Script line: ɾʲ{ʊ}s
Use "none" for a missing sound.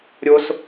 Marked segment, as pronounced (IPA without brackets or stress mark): ʊ